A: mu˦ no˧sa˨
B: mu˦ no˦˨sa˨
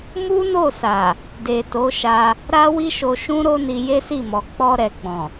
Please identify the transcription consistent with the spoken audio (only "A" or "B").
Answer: B